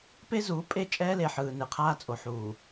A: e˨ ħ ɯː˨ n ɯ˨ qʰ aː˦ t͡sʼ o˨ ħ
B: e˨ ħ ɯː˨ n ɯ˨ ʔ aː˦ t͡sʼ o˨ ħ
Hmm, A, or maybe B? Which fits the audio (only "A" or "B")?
A